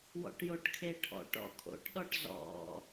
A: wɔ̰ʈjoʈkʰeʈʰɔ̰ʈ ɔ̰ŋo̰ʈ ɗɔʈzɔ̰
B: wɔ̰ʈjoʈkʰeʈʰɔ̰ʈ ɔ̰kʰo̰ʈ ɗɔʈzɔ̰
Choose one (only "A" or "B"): B